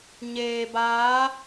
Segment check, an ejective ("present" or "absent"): absent